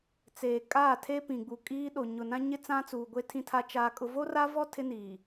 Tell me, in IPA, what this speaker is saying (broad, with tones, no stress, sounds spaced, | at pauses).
t͡s eː˨ kʼ aː˦˨ tʰ e˦ p ĩ˨ ɡ͡b u˨ kʼ iː˦ ɗ o˨ ɲ ʊ˨ n ã˦ ɲ ɪ˦ t͡s ã˦ t͡s uː˨ ɡʷ e˦ tʰ ĩ˦ tʰ a˦ t͡ʃ aː˦ kʼ ʊ˦ v o˦ r a˦ v ɔ˦ tʰ ɪ˦ n iː˨